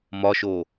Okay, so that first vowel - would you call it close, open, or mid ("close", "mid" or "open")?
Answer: open